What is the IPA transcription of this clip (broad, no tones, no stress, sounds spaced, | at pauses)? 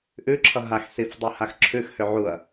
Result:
ʔ ʉ ǁʰ ʌ ɦ a x s i f dˤ ʉ h a x ǁʰ ʉ x h ø ʕ u ɐ̯